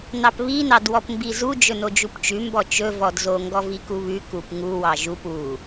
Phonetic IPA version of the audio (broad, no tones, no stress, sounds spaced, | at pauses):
n ɑ p β i n ɑ d w ɔ p m b i z u d͡ʒ ɵ n o d͡ʒ u p t͡ʃ ʉ m b ɔ t͡ʃ ɵ v ɔ d z o ŋ ɡ ɔ v i k u β ʉ k u p ŋ u w ɑ ʒ u p u